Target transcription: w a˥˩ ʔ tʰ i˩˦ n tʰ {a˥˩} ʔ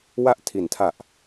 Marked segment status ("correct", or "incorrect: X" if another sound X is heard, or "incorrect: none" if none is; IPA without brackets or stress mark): incorrect: a˨˩